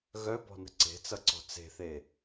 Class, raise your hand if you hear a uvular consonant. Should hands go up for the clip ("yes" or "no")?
no